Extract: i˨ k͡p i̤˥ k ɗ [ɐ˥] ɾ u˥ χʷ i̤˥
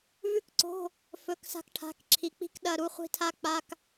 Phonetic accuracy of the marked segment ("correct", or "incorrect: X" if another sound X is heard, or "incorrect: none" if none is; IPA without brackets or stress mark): incorrect: ɐ˧˥˧